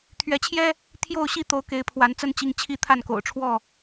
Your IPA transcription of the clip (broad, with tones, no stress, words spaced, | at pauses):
t̪ʰɥɛ˨˦t͡ɕʰjɛ˦ | t̪ʰjo˥˨ʊ̯ɕi˦t̪o˨˦ʊ̯ ke˨˦ɪ̯pʰwa˨˦nt͡sə˦n t͡ɕi˦ŋ t͡ɕʰi˦t̪ʰa˥˨nko̰˨˩ʊ̯ʈ͡ʂʰwɔ˥˨